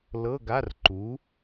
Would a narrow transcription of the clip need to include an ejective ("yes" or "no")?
no